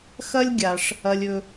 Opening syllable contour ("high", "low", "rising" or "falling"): high